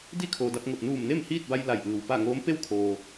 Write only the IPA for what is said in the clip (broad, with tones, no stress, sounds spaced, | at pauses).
d i˥˨ kʰ oː˩ d a˧ p̚ ŋ o˧˩ t̚ n uː˧˩ m n e˥˨ m h iː˥˨ t̚ b a˧ j l a˧˩ j ʔ ɯː˩ w p a˥˨ ŋ oː˧˥ m p e˥˨ w kʰ oː˩